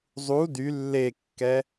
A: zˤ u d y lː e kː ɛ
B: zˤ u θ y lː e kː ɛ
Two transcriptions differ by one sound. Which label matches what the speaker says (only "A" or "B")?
A